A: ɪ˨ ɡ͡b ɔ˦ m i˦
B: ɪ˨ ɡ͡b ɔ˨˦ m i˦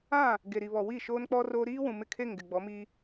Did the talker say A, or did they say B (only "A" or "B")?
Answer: B